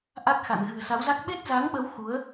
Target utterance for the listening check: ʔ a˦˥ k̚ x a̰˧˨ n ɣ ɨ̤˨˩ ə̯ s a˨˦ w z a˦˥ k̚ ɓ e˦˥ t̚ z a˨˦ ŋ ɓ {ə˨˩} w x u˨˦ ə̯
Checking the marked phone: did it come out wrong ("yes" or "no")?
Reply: yes